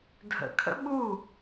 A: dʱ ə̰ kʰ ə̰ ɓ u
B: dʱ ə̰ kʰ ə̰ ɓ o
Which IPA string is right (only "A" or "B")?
A